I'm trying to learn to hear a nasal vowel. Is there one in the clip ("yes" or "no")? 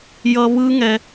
no